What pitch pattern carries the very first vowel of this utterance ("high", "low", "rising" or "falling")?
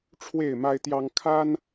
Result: falling